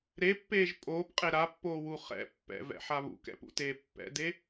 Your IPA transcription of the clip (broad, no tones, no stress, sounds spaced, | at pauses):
ɾ e pː eː ʒ pʼ oː p qʼ e ɾ a pː oː w u χ ɛ̰ pː ɛ̰ v ɛ̰ ħ a β ṵ k ɛ̰ p ṵ t eː pː ɛ̰ d e